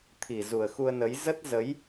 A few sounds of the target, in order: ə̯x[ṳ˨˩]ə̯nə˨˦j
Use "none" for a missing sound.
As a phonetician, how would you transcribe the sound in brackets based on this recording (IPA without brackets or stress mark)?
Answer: u˧